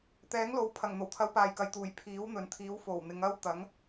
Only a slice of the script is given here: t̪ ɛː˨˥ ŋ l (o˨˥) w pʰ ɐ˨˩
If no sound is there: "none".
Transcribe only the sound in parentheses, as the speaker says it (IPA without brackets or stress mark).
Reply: o˨˥